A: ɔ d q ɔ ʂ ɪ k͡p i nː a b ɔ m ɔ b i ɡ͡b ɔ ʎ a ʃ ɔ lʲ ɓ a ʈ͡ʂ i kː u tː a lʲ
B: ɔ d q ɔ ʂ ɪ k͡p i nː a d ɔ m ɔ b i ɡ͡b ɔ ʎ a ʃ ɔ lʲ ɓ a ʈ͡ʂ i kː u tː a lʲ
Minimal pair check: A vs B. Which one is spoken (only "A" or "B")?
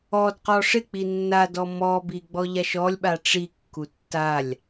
B